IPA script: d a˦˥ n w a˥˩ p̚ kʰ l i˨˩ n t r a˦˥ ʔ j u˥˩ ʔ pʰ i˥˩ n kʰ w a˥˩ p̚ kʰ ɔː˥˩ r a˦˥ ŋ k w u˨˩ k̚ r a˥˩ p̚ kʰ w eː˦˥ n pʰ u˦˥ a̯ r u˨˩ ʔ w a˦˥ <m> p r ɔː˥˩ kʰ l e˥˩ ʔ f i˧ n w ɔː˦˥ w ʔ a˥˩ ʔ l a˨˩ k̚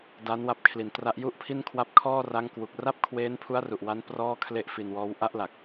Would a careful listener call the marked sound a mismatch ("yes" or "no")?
yes